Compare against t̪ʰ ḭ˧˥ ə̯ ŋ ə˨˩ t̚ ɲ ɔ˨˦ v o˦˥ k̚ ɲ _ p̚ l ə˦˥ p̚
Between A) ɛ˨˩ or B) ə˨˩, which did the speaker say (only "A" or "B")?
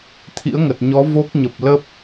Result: B